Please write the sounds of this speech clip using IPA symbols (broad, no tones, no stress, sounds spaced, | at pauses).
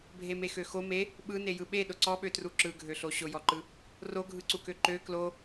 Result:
bʱ e m e x ø x o m e | ɓ ɯ n e j ɯ ɓ e ɗ ʊ ǀ ɔ ɓ ø t r u ǁ ɯ ɡʱ ø ɬ o ɕ ʊ j ɔ ǃ ɯ | r o ɡʱ ɯ ǀ u k ø ǃ ø k l o